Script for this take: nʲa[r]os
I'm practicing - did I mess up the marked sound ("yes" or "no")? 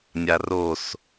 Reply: no